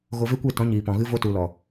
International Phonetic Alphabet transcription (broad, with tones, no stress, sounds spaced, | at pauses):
ɣ o˧ v e˦ kʷ e˦˨ t ɔ̃˨˦ ɲ iː˨ p ɔ̃˨ ɣ ɨ˦ v o˦ t u˨ l ɔ˨